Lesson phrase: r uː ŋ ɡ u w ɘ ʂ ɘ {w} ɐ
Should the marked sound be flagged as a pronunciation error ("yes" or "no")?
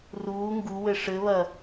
yes